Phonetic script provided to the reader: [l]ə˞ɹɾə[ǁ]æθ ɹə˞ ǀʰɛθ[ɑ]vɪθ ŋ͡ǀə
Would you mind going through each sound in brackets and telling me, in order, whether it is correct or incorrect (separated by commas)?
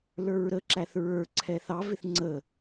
correct, correct, correct